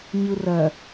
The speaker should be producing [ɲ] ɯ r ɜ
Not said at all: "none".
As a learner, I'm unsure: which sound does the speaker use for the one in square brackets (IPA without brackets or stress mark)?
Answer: ɲ